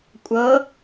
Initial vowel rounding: unrounded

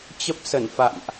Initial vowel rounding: unrounded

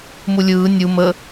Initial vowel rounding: rounded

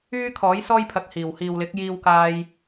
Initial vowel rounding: rounded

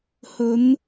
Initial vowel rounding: rounded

